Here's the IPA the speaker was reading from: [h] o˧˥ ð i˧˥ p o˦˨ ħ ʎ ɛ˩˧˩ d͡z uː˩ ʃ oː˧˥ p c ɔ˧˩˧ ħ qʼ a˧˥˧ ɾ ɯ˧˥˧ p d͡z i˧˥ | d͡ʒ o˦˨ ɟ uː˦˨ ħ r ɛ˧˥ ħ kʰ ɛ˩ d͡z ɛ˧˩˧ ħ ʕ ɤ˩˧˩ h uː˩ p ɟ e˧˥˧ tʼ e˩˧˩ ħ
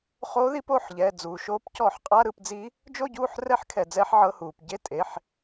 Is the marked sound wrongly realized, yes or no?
yes